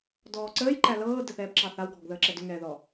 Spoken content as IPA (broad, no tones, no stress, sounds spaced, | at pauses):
d ɔː ǀ əː j ǃ æ l ɤː d ə θ ɛː b ǁ ɑ θ a w ɡʱ ɔ ɡ ð əː ǁ ɛ d ʏ ŋ ɛː ð ɔ